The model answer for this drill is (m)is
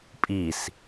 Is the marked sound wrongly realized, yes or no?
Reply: yes